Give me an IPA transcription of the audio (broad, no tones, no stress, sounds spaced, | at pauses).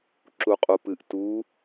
ǁ u qʼ u p ɨ ʔ t u